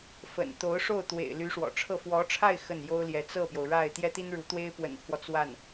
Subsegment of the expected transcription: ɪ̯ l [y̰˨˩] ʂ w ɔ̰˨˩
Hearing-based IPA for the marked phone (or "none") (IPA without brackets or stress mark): y˧˥